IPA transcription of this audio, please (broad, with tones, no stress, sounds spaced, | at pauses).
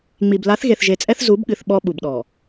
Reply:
ŋ͡m i˨ b l a˨˦ θ ɣ e˨ θ ʒ e˨ t͡sʼ ɛ˦ θ z u˨˦ b ɠ ɨ˨ θ ɓ ɔ˦ ɓ u˨ b ɗ ɔ˨